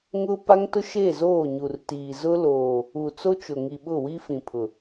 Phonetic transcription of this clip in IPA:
ŋʊ˦ pa˦ŋtʊ˦ ʃe˦˨zoː˦˨ɲu˨rtiː˨ zʊ˦loː˨ | u˨t͡so˦t͡ʃʊ˨ŋi˨ ɓʊ˦˨wi˦fĩ˨ pʰʊ˨

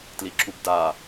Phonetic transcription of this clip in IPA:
tliǁubda

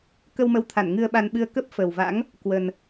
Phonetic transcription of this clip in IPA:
kə˧wmə˨˦wt̪ʰa˧˩n ŋɨ˧ə̯ɓa˧nɓɨ˧ə̯ kə˦˥p̚fə˨˩wva̰˧˥ŋ | kwə˨˩n

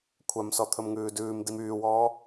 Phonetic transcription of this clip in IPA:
kʷʰœmsɔt̪ʰɵm ŋʉːdʉːm dimyːwɔː

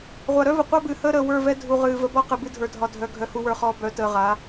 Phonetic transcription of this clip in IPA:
ʁʷa˨ɾœ˦və˨ qʷa˦bɨː˨həː˦ɾəː˨ wə˞˦˨vɛ˦ dʱu˨ ʁɨː˨ və˦bɔ˦qɨ˨ bɨ˦dʱə˞˨dʱɒ˨ dʱœ˨ ɡʱœ˨hu˨wə˞˨χɔː˨ bœ˨˦təː˨ʁa˨˦

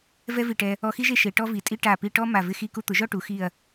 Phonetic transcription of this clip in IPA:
vɛ˥vi˧˩ʈɛ˧ | ɔ˧xi˥ʒe˥˧ ʃe˩˧ʈɔ˥vi˩˧tʼi˥ ʈa˧˩pi˧ ʈɔ˥ ma˧˩vɪ˥˧xi˥˧ku˥ t̪ʊ˩˧ʒɔ˥˧ʈu˩˧ xi˧˩ɐ̯

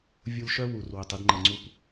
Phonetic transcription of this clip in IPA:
vʲu˧lʃœ˦˥ wu˨˩r wɪ˨˩tˤi˧dŋ͡ǃə˨˩ŋ͡ǀu˧p

